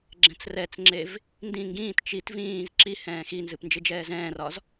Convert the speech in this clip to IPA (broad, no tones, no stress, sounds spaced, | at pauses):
ɡ͡ǁ ɛ̃ t͡s r ɛ t͡s ŋ͡ǁ e v | n d ĩ ŋ ɡ ĩː t t͡ʃ i t v ĩː z ǁ i h ɛ̃ː x i n z ɨ p n d͡ʒ ɨ d͡ʒ ɛː z ɛ̃ː r ɒ z